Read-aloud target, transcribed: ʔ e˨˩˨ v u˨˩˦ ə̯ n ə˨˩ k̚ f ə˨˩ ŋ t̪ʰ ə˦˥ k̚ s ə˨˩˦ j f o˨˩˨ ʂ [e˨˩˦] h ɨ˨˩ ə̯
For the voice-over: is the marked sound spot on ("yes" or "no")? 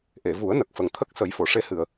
no